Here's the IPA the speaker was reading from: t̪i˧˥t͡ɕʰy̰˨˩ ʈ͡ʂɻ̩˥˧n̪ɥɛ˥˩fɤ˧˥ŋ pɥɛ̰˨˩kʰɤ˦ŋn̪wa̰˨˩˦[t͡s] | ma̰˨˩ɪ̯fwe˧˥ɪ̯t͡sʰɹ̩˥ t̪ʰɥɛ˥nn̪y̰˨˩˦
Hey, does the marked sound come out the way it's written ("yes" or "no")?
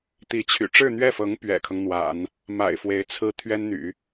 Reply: no